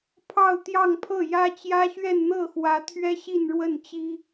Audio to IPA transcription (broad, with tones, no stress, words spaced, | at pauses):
pʰɑ˥˧ʊ̯t̪jɑ˥˧ŋpʰɤ˥˩jä˥ t͡ɕjä˥ɕɥɛ˥˧nn̪ɤ˥˩xwä˧˥ t̪ʰɥɛ˥ ɕi˥˧nɻwə˥˩nt͡ɕi˥